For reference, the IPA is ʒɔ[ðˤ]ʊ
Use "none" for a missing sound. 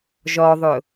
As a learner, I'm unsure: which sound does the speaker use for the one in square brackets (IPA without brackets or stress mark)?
ðˤ